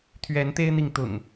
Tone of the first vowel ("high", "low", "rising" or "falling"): rising